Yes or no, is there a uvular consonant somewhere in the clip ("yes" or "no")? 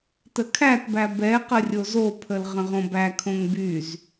yes